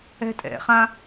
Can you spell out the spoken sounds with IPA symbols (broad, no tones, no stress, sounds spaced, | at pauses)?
ɛ̤ tʼ ɛ̰ χ ã